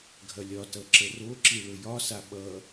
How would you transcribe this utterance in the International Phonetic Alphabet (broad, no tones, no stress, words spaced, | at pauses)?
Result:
ɡʱɐlʲɒtʌ ǁəroǁi ɭɵjɒsa ɓʌ